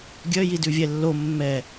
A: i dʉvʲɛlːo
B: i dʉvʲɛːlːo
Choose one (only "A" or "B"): A